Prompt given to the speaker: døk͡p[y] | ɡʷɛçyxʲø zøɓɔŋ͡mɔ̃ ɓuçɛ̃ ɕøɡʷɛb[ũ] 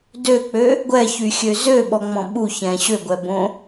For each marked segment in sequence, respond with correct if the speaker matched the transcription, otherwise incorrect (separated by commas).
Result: incorrect, incorrect